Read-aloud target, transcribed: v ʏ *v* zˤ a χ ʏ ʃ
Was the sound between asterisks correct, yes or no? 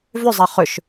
no